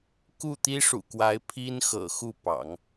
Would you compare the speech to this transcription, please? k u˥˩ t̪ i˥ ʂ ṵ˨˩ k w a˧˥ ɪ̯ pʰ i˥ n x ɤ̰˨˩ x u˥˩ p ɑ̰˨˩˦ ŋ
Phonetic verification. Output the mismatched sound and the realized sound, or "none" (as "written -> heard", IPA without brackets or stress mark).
none